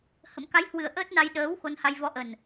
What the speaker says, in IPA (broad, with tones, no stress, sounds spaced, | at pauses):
h ə̰˧˨ m k a˨˦ j h w ɨ˨˩ ə̯ ʔ əː˦˥ t̚ n a˧ j ɗ əː˨˦ w x o˧ n h a˧ j v ɔ˨˦ ʔ ə˨˩ n